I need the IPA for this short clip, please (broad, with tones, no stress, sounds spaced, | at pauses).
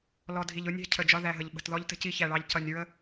l ɔ˨ dʱ i˨ ʎ ʊ˦ nʲ ɛ̤˦ cʰ ə˨ d͡ʒ ɒ˦ ð æ˨ ɦ ə˨ ʎ ɓ ə̤˨ t ð ɔ˦ ʎ t ə̤˦ c i˦ ç æ˨ ɭ ɑ˦ ʎ c ʌ˨ nʲ ɹ ə˦